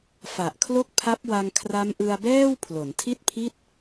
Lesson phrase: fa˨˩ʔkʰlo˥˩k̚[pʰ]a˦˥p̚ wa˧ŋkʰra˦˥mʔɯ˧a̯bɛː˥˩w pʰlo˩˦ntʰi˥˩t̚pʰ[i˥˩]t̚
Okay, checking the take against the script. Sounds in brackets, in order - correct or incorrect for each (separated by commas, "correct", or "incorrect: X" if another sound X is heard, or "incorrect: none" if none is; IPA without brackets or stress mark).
correct, correct